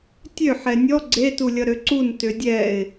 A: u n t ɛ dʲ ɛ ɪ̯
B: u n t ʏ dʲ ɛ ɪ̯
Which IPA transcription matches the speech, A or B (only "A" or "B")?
B